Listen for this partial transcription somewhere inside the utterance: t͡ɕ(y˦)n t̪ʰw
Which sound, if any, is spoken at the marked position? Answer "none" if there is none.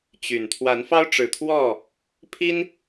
y˨˩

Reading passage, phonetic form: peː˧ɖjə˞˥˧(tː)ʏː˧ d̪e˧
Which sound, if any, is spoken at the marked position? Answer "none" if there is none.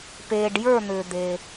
n̪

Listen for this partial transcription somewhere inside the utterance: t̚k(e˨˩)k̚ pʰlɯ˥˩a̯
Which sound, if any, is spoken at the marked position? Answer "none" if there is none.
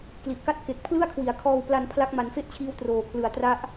e˨˩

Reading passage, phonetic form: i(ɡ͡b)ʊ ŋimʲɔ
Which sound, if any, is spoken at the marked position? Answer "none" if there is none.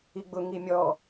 ɡ͡b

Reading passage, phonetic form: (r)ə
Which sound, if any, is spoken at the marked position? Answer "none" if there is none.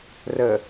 r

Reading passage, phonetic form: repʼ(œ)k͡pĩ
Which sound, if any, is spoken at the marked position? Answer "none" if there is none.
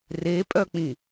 œ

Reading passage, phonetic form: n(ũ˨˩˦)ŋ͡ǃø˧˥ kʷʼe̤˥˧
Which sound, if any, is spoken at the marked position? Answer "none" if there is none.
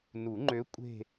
u˨˩˦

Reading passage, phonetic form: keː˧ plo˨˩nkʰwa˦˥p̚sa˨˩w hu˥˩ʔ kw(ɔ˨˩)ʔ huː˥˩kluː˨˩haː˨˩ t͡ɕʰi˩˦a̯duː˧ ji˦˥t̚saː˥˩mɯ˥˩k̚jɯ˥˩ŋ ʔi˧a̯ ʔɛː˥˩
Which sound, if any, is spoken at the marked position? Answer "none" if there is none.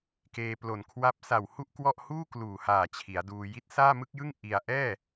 ɔ˥˩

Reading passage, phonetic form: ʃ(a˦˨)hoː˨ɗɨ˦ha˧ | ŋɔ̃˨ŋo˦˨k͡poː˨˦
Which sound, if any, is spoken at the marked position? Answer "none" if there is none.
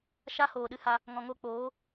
a˦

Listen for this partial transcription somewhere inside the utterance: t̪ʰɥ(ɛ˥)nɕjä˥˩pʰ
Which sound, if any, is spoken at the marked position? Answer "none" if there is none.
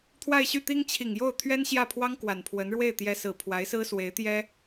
ɛ˥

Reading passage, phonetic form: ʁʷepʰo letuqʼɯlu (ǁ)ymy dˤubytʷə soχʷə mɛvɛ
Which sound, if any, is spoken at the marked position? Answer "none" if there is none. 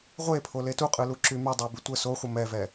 ǁ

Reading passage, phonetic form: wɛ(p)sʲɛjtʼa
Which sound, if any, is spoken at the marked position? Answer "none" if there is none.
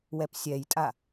p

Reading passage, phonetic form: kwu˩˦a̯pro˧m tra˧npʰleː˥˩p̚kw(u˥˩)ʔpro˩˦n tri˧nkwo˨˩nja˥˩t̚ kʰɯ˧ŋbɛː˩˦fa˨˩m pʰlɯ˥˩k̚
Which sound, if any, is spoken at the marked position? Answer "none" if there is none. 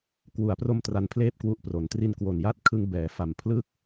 u˦˥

